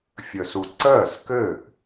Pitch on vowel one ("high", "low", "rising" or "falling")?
low